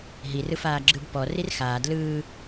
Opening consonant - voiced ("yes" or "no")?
yes